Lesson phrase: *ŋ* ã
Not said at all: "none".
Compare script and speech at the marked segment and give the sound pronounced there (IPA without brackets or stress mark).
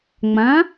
ŋ͡m